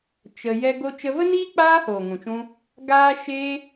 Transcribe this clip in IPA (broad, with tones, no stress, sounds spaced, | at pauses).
t͡ʃ ə˧ j ɛ˦ ɡ o˧ t͡ʃ ə˧ v ə˦ n iː˦ k͡p aː˦ h oː˨ ŋ ũ˨ t͡ʃ ũ˧ | ɡ aː˦ ʃ eː˦